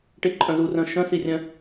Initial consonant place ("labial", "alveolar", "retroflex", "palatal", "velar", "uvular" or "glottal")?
retroflex